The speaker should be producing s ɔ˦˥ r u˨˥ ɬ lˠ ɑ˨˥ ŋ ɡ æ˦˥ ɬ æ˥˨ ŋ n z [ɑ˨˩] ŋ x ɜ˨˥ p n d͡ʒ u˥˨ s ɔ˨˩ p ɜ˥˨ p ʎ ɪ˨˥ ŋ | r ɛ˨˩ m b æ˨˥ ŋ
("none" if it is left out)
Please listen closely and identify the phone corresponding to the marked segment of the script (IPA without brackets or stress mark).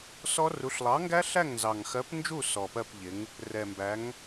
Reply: ɑ˨˩